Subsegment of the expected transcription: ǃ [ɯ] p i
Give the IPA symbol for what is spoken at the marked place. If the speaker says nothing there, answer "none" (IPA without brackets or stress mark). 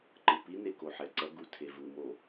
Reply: ɯ